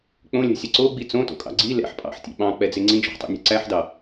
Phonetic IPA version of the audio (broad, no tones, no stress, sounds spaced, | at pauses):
k͡p õ lʲ ɛ̤ sʲ ɛ ǀ o ɡ͡b i t͡s õ t o̰ kʼ ɑ̰ ɡ͡ǀ i l ɛ̰ ħ pʼ ɑ̰ ħ tʲ ḛ ɓ ɑ̃ k͡p ɛ d͡z e ŋ͡ǀ ĩ d͡ʒ ɔ̤ ħ tˤ ɛ̰ nʲ ɛ̤ ǀ æ ħ d ɑ